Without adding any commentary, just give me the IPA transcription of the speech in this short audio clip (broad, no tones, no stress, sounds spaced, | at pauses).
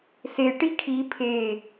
s e ʈ i kʰ i pʰ e